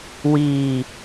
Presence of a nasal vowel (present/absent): absent